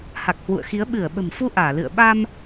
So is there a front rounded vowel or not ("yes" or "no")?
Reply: no